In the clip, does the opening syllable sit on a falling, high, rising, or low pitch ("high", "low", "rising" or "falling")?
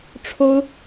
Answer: high